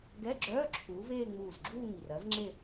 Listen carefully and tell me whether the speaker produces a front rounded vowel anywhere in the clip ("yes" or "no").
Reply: yes